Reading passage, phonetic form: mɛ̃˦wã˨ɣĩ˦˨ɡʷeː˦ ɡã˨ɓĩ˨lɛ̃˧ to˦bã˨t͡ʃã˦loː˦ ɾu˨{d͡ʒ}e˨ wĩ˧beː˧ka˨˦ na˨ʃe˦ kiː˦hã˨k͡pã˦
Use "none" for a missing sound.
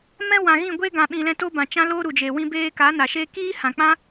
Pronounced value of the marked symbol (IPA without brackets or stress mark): d͡ʒ